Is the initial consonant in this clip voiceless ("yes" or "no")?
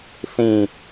yes